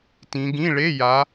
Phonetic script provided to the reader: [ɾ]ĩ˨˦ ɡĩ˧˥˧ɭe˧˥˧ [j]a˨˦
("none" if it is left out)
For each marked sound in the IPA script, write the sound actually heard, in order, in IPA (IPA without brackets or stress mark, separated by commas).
t, j